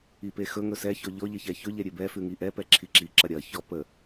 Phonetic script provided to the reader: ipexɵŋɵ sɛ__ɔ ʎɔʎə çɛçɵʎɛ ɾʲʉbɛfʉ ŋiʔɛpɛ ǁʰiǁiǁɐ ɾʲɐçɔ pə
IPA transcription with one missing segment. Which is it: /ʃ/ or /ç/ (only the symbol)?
ç